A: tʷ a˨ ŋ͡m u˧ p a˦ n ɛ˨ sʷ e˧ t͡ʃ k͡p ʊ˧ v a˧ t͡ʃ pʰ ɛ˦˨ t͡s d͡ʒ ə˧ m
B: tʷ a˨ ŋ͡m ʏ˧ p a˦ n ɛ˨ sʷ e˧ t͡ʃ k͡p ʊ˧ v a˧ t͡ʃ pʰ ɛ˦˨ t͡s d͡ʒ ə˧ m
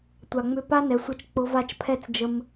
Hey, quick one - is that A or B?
B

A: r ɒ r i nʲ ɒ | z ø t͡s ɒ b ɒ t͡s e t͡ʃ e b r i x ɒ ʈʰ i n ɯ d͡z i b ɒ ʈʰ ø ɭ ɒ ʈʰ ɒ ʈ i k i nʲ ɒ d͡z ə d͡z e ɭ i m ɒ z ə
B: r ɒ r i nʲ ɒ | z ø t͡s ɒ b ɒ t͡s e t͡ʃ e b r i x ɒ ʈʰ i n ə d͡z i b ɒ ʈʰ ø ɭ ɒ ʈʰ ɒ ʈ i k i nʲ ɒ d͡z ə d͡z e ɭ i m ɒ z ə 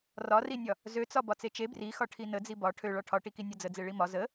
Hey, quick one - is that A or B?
B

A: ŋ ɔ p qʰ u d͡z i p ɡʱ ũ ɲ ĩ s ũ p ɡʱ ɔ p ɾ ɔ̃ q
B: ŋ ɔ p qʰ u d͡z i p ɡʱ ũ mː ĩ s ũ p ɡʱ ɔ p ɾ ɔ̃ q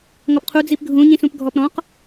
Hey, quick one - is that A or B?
A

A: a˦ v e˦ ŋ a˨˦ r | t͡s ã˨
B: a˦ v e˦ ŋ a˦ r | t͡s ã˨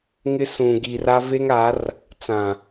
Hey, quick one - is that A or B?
A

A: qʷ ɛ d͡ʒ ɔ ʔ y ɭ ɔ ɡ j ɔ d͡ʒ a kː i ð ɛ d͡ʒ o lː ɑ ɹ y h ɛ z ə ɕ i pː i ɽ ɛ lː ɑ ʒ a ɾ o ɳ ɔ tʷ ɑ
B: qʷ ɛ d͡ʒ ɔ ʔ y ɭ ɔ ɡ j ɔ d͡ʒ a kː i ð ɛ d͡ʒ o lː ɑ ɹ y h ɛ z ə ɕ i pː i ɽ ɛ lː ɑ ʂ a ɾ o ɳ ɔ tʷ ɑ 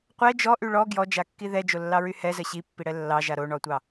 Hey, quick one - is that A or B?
A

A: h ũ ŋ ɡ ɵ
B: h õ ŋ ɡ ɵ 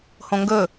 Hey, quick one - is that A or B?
B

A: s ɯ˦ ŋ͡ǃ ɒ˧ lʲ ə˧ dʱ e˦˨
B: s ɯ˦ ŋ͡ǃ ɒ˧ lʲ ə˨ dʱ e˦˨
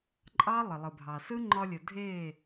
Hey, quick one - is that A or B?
B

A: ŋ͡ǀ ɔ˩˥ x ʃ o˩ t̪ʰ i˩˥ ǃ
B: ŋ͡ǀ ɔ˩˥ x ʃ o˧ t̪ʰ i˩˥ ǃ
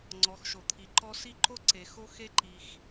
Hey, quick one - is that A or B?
A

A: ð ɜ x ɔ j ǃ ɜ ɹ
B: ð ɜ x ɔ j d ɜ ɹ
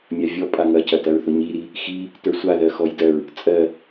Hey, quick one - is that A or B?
B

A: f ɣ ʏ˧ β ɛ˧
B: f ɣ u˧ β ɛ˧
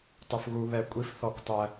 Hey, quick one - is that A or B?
B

